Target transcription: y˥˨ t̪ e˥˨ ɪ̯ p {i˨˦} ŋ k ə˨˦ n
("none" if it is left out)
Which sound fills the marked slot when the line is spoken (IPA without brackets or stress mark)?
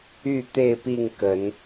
i˥˨